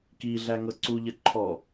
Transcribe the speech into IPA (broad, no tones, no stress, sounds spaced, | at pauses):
k i ɮ æ ŋ ɤ ǀ u ʎ ə ǃʰ ɔ